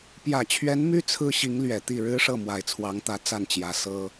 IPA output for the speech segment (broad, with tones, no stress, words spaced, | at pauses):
pjä˨˩t͡ɕʰɥɛ˧˥n my˥ t͡sʰɹ̩˥ɕi˧˥ŋ lɥɛ˨˩t̪i˥˩ ɻɻ̩˥ʂɤ˥˩ mwa˨˩ɪ̯t͡sʰwɑ˧˥ŋt̪ä˧˥ t͡sa˥˩nt͡ɕjä˧˥ sɤ˥